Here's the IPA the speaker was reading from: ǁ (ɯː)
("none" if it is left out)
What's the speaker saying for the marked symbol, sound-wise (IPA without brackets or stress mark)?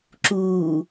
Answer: uː